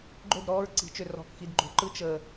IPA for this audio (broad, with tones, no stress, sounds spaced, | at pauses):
ɡ͡ǃ ɵ˦˨ d ɾ ɔː˦ ɹ ǀ i̤˨˦ t͡ʃ ø˨ r ɔ̤˨ k x i˨ d ɡ͡ǃ o̤˨ ǃ ɯ˦ t͡ʃ əː˨